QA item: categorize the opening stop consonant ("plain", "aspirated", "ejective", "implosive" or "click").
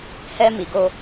plain